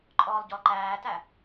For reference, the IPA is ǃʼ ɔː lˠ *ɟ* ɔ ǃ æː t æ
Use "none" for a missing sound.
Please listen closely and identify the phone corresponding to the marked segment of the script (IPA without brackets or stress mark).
ɟ